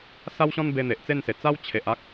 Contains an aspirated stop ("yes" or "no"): yes